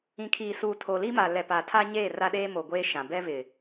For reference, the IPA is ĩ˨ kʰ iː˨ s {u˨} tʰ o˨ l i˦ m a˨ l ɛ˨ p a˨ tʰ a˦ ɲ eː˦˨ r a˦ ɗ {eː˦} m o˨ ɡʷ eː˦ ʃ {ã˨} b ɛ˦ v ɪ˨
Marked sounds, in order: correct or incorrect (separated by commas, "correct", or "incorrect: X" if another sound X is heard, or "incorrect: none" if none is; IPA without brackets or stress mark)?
incorrect: uː˨, correct, correct